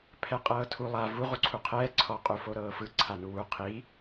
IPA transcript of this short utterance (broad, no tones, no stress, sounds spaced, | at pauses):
pʰ ɛ qʼ ɤː tʰ u lˠ a v u ʁ u ǀʰ u qʰ ɛː ǀʰ ɔ qʼ u f o ɾ ɤː f ɯ ǀʰ a n u w u qʰ i